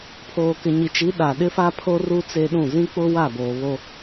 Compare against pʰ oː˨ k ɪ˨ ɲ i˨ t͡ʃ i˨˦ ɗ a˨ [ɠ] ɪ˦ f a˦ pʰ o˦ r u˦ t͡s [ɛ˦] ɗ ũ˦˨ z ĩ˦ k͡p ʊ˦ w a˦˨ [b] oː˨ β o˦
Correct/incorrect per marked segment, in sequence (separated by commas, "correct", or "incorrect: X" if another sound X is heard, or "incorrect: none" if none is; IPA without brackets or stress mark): incorrect: ɗ, incorrect: e˦, correct